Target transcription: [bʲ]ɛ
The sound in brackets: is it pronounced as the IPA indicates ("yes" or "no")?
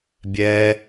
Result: yes